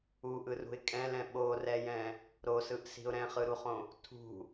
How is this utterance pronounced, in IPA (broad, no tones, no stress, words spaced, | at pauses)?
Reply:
uʔɯrṳɪ̯ kʼɛ̃lɛ̃ ɓorɛjɛ̃ | ɾosɯʔsi̤ʊ̯ ɾɛ̃χɯɾuχõ | tʰṳ